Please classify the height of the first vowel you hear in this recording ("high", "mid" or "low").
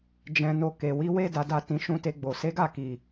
mid